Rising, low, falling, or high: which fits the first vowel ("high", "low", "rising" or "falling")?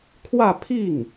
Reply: falling